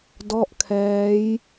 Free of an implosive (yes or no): yes